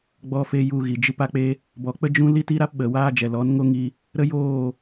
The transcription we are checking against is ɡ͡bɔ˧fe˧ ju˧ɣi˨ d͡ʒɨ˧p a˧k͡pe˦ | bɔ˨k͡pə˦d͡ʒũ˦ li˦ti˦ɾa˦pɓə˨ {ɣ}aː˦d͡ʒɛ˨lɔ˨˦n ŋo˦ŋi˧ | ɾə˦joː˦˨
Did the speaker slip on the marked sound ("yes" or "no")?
yes